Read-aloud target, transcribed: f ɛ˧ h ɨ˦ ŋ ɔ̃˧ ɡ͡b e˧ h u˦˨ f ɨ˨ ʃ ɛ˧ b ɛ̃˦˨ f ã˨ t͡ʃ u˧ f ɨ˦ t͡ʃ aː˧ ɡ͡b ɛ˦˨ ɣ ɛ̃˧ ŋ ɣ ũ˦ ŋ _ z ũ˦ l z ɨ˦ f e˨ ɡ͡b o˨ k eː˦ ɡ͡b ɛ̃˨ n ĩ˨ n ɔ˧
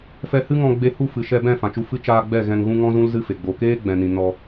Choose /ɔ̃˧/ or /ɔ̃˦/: ɔ̃˦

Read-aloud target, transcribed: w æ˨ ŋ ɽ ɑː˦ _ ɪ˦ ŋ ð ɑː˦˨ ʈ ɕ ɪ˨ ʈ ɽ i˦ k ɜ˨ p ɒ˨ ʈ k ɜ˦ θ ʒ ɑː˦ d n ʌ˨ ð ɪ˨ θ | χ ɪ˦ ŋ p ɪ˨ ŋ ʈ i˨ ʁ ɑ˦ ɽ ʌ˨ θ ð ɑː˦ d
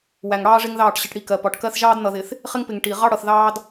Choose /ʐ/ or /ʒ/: ʐ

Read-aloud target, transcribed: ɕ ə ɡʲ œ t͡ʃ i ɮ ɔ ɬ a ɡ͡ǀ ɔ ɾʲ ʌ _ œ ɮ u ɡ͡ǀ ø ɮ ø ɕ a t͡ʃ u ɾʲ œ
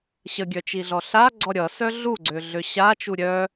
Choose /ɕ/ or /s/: s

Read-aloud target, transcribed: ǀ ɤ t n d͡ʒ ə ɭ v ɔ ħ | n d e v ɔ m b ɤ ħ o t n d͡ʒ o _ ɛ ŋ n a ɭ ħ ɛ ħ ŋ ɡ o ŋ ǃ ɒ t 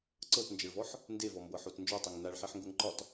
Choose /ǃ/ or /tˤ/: tˤ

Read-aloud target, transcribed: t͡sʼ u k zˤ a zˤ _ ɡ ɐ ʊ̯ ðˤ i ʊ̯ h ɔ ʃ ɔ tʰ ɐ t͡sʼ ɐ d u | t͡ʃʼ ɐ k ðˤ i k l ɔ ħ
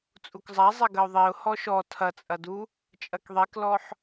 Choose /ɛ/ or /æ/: ɛ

